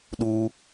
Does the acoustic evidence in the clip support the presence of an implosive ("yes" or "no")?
yes